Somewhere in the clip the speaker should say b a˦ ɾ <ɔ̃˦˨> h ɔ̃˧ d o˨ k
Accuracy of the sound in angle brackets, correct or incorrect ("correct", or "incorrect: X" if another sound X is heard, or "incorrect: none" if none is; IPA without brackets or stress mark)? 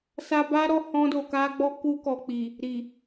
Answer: incorrect: ɔ˦˨